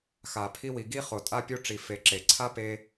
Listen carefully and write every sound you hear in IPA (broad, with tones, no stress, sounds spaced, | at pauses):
x a˨ pʰ i˦ w i˨ ɡ i˦ χ o˨ tʼ a˦ pʲ o˦ ʈ͡ʂ i˨ f e˨˦ ǁ e˨ ǀʰ a˦ p e˦